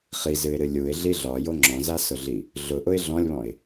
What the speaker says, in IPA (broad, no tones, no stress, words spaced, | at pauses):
χizɨɪ̯ɾɨ lʲuɪ̯ɮi ɮɒjo ŋ͡ǁɔ̃zasʊɮi | ɮʊʔʊɪ̯ ɮɔ̃lʲβɔ̃ɪ̯